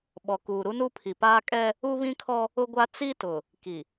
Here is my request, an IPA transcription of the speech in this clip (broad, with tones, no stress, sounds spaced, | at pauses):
ɓ ɔ˨ k uː˨ ɾ u˦ n u˦ pʰ i˨ p aː˦ kʼ ɛ˦ | u˦ β ĩ˦ kʰ ɔ˦ | ʊ˦ ɡʷ a˦ t͡s i˦ t ʊ˨ | k i˨